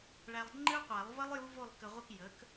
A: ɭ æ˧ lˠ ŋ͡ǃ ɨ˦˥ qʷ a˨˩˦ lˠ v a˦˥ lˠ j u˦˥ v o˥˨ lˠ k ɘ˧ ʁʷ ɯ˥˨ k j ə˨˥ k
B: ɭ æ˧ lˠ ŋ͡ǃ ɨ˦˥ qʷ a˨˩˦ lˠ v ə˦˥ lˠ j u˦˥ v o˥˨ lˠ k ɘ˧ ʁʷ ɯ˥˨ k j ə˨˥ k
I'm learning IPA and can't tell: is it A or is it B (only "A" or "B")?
B